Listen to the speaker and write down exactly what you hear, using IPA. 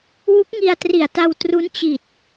w u˦˥ k̚ ŋ i˧ a̯ t r i˨˩ a̯ t a˧ w t r u˦˥ n t͡ɕ i˨˩ t̚

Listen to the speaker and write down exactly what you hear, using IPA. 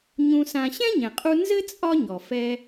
ɲ ũ˧ s ã˧ ɕ ɛ̃˥ ɲ ɛ̃˩ qʼ u˧ n z ɘ˥ t͡sʼ ɒ˥ ɲ ɔ˩ f ɛ˧

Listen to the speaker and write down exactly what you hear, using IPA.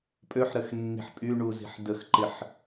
pʼ ø ħ ɾ ə x nː i̤ ħ pʼ y ɳ u z i̤ ħ d ə x ǃ ɪ ħ

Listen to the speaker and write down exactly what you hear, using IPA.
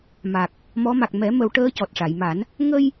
m a˨˩ k̚ | m ɔ˧˥ m a˨˩ k̚ m ɛ˨˩˦ m ə˨˩˦ w ʈ əː˧˥ c ɔ˨˩ t̚ ʂ a˨˩˨ j m a˨˩˦ n | ŋ ə˧ j

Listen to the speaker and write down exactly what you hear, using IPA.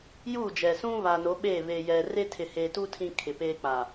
j uː˦˨ d͡ʒ ɛ˨ s ũ˦ β a˨ n o˨˦ ɓ e˦˨ β e˨ j ɛ˨ r e˦ tʰ ɪ˨ h eː˨ t u˦ tʰ ĩ˦ kʰ ɪ˨ p eː˦ k͡p a˨

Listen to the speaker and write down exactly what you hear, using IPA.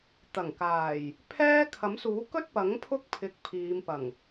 t̪ ɐ˨˩ ŋ k aː˨˩ j | pʰ ɛː˥ kʰ ɐ˨˥ m s uː˨˥ k ɵ˥ t̚ p ɐ˨˥ ŋ pʰ ʊ˥ k̚ pʰ ɪ˨˥ k̚ pʰ iː˨˧ m p ɐ˨˩ ŋ

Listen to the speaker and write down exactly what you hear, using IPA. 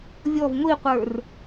vʲ ɔ v ŋʷ i qʷ ə˞ r

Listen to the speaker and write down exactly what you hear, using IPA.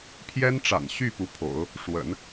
pʰ j ɛ˥ n ʈ͡ʂ a̰˨˩ n ɕ y˥˩ p u˧˥ pʰ o̰˨˩˦ ʊ̯ | ʂ w ə̰˨˩˦ n

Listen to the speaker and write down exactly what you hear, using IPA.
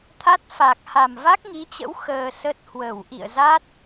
t̪ʰ a˦˥ t̚ f a˨˩ k̚ h a˨˩ m v a˦˥ k̚ ŋ i˨˦ t͡ɕ ə̰˧˥ w x əː˧ s ə˦˥ t̚ h w ə˧˩ w ʔ ḭ˧˨ ə̯ z a˦˥ t̚

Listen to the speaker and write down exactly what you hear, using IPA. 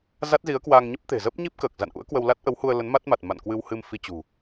z a˦˥ t̚ z i˨˦ ə̯ k w aː˧ ŋ ɲ ə˦˥ p̚ t̪ e̤˨˩ z ə˦˥ p̚ ɲ i˦˥ p̚ k əː˨˩ k̚ z a̰˧˨ n ʔ ṵ˧˥ ə̯ k w ə˧ w l a˦˥ t̚ ʔ ə˨˦ w h u˧ ə̯ l ə˨˦ n m a˦˥ t̚ m a˨˩ t̚ m a̰˧˨ n k w ɨ˧ w h ɨ˧ m f i˧ t͡ɕ ṳ˨˩

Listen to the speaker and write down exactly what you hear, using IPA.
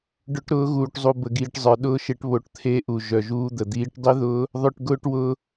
ɖ ʊ˦˥ ʈ ɾ ʊː˦˥ ɣ uː˧ ʈ zˤ u˧ b ə˧ ɡ iː˧ ʈ zˤ ə˞˧ ɗ ʊː˦˥ ʃ e˦˥ ʈ β o˧ ʈ t̪ʰ e˦˥ ʔ u˧ ʒ œ˧ ʒ uː˦˥ d̪ ə˧ d̪ iː˦˥ ʈ dˤ i˦˥ ð ʊː˦˥ | ðˤ œ˧ ʈ ɡ ʊː˧ ʈ w ʊː˧

